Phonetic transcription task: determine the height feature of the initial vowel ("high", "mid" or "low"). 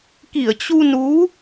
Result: high